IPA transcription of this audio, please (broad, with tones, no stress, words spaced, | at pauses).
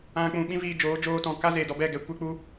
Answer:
ã˧ k͡pũ˧ɓĩ˦viː˧d͡ʒoː˨˦ d͡ʒoː˧tɔ̃˨ ka˦ze˨dɔ˧bɛ˦˨ ɡɛ˧ kʷe˦k͡pu˦